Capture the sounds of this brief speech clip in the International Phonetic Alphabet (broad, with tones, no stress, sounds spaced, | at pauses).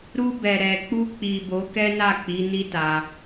ɾ u˧ b ɛ˨ ɾ ɛ˨ k͡p u˧ k͡p i˨ b o˨˦ k ɛ˦ n a˦˨ k͡p i˨˦ n i˦ t a˧